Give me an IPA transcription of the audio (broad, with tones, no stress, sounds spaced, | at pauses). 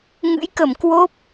ŋ ɨ̰˧˥ j k ə˧˩ m k w o˦˥ p̚